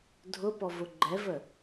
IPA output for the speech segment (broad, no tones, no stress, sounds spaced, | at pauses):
dʱ ʊ p ɔ v ʊ ɡ͡ǃ ɛ v ə